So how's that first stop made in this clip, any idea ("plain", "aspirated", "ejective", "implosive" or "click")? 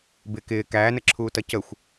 plain